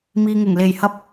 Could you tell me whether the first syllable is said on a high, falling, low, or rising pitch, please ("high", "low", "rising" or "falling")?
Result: low